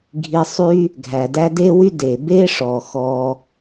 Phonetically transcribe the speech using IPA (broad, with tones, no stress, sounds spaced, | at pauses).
ɡʱ i˧ sˤ y˥ | ɡʱ æ˩ d æ˥ d e˥ w y˥ d e˩ b e˥ ʂ ɔ˩ x ɔ˧